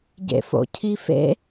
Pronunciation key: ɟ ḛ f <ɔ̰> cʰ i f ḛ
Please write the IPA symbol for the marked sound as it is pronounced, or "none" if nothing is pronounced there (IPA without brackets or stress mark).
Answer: o̰